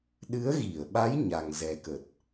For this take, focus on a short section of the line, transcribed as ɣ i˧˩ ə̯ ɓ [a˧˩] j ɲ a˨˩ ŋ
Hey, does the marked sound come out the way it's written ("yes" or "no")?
no